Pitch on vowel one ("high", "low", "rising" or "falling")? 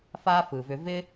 high